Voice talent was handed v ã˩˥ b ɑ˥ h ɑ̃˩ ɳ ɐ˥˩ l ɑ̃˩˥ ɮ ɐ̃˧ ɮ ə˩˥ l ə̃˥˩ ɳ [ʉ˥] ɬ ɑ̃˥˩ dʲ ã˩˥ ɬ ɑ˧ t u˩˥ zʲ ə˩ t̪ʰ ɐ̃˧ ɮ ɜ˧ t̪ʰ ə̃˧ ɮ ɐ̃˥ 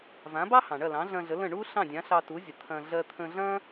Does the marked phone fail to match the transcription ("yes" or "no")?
yes